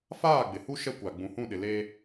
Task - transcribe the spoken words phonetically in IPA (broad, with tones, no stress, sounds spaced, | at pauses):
f aː˦˨ ɡ͡b ɪ˨ h u˦ ʃ ɛ˦ kʷ a˨ ɡ͡b ũ˨ h ũ˦˨ ɗ ɪ˨ l e˦